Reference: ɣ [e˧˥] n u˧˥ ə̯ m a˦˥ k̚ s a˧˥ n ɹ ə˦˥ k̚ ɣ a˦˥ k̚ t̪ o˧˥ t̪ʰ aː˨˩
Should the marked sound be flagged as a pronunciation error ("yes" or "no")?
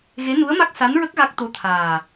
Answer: no